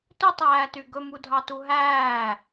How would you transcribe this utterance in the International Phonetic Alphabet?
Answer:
tɵtˤæːty ɡɵmudʱɑtu ɦæː

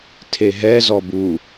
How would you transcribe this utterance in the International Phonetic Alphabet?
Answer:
tʰeɦɛzɔb u

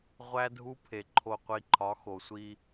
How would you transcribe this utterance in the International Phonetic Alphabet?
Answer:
ʁʷæ˦dʱu˦pʰe˨ ǃʰo˨qʷi˨ǃʰɒ˨˦ xo˨sʷi˦

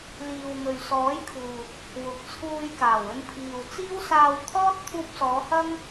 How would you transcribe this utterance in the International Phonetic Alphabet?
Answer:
liː˨wŋɵ˨ɥ sɔː˨˥jkʰuː˨t̚ | wʊ˨k̚t͡sʰuː˧j kaː˨˩wɵ˧npʰiː˨w t͡siː˥wsaː˧w t̪ʰɔː˥t̚ t̪ʰuː˧p̚sɔː˨˧hɐ˥ŋ

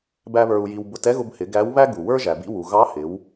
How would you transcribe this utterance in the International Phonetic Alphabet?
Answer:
bæ˥βə˞˧u̯ji˧wbʊ˧˥t ɛ˥ɣʊ˧bhɪ˩˧ ɡæ˧˥w βæ˥ɡu˩wə˞˥ʒæ˩ bḭ˧wu˩ ɣɑ˧˥hɪ˩˧w

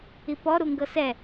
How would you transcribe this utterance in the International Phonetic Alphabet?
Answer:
ipɔ ɾuŋɡɤsɛ

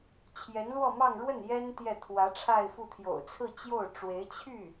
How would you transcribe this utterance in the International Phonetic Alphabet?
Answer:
t͡ɕʰjɛ˧˥nlwɔ˥˧mɑ˥˧ŋ ɻwə˥˩njɛ˥n t̪jɛ˥˩ t̪ʰwä˧˥ʈ͡ʂʰa˥˧ɪ̯fu˥˩ t̪ʰjo̰˨˩ʊ̯t͡sʰɹ̩˥˧t͡ɕjo˥˩ʊ̯ʈ͡ʂwe˧˥ɪ̯ t͡ɕʰy˥˩

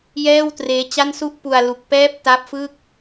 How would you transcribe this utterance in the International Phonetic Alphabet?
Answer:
jɛː˥˩wtreː˦˥t͡ɕa˥˩nsu˥˩ʔ pu˧a̯ lu˨˩k̚pɛː˦˥p̚ ta˦˥p̚fɯ˥˩k̚

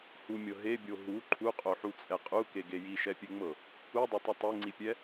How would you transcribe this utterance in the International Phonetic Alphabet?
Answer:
humʲɤ ɦebʲo ɦu ǃʰuqʼoħut͡sʼɛ qʼukeɡe jiʃɛpʲeŋ͡mɤ | udˤetˤɤ tˤeŋ͡ǀipʲɛ

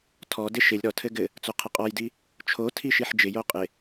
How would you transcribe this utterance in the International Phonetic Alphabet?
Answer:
tʰɔdɪ ʃɪlʲ ɾɔtʰɘ ɡɘ | t͡soqʰɘqʼɔjdi | t͡ʃʰotʰi ʃiħd͡ʒɪjo qʼɪ

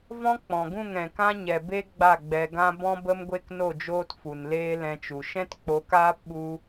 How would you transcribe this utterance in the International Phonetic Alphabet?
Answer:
vɔ̃˦k͡pɔ̃˨ɡũ˦˨ŋ ɛ̃˨kã˦ɲɛ˨ be˦ ɡ͡ba˦˨ɡ͡bɛ˧ɡã˦ bɔ̃˦bə˦mɡʷe˦k no˦˨d͡ʒoː˦t fu˨nleː˦lɛ̃˧t͡ʃu˨ ʃɛ̃˦tk͡po˨˦kaː˦p ɓu˦

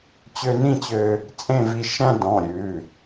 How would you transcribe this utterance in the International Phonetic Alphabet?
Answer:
t͡ɕø˧nĩ˥˨t͡ɕø˧ | t͡sʼẽ˥˨vi˧ ʃæ̃˧ dɔ̃˩˧˩ ɾʲʉː˩˧˩

